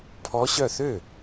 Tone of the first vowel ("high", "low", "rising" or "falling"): rising